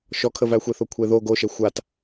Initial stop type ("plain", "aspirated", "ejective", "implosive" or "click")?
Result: aspirated